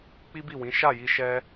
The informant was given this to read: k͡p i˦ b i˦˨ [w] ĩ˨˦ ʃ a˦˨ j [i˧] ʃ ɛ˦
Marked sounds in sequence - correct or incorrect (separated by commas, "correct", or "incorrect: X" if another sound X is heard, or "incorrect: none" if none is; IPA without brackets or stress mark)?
correct, correct